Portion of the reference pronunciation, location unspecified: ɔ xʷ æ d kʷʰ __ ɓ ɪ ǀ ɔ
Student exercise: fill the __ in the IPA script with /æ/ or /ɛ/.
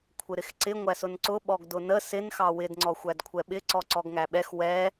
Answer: ɛ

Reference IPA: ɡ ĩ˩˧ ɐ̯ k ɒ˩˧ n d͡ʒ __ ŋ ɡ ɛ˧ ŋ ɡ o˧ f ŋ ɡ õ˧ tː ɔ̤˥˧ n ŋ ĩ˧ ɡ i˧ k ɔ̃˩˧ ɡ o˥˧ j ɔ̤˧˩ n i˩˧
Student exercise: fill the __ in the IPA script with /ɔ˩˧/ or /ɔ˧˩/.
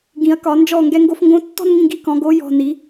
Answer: ɔ˧˩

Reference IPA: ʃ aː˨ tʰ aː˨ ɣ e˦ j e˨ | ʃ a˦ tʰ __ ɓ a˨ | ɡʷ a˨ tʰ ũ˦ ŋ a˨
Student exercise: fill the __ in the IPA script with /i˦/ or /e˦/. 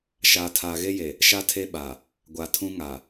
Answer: e˦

